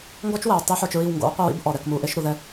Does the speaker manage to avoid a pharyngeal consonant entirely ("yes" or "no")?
no